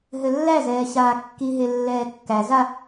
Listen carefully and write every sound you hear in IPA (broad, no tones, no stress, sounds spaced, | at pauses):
ɦ ɘ lː æ z ɛː ɕ aː kː i ɦ e lː ɛː kː æ z a